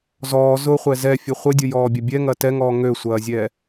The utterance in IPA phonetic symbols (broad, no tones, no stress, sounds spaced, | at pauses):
z ɔː z ʊ χʷ ɛ z ɛ fʲ ɘ χʷ ɘ dʲ ʊ j ɔː bʲ ɐ bʲ ɛ ŋ ɐ t ɛ ŋ ɔː ŋ ø sʷ ɐː zʲ ɛː